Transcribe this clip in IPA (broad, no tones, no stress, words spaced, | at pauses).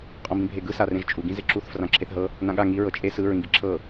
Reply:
qʼɔ̃bĩbʱeɡɯ sarẽʒt͡ʃʼu ɡĩzeǁuθ frãǁʰeθɦɤ | nãɠa ŋi ɹɤt͡ʃʼe sɯ ɹĩɡiǁʰɤ